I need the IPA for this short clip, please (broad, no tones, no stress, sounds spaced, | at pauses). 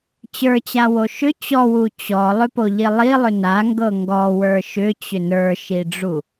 t͡ɕ ə˞ t͡ɕ a w o ʃ ʏ t͡ɕ ɔ w u t͡ɕ ɔ lˠ ʏ p o ʎ i lˠ i lˠ ʏ n a ŋ ɡ ɤ ŋ ɡ ɔ w ə˞ ʃ ʏ t͡ɕ ʏ n ə˞ ʃ i ɖ͡ʐ u